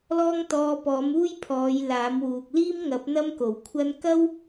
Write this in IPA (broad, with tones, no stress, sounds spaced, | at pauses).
l ɔː˥ ŋ t̪ ɔː˧ p ɔː˨˥ m uː˥ j pʰ ɔː˨˧ j l aː˨˥ m w uː˨ k̚ l iː˥ m ŋ ɐ˨˥ p̚ n̪ ɐ˥ m k o˨˩ w kʷʰ ɐ˥ n k ɐ˥ w